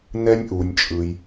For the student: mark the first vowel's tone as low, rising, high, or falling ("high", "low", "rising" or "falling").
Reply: high